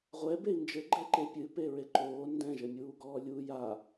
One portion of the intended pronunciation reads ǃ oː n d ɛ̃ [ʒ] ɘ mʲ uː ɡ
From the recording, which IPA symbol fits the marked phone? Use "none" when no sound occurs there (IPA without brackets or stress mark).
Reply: ʒ